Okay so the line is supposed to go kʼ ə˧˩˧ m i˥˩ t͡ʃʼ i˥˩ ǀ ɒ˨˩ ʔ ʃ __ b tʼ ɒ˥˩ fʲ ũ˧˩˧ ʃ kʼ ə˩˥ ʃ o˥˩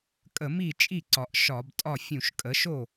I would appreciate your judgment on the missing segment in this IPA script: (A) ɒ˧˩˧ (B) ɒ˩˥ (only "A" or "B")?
A